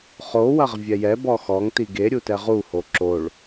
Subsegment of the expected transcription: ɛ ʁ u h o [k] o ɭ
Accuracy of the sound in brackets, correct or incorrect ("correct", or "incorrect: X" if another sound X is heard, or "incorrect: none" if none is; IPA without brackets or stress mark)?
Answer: incorrect: ǁ